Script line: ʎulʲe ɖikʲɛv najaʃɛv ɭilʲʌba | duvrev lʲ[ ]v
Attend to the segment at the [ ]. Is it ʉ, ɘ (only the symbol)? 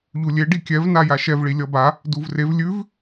ʉ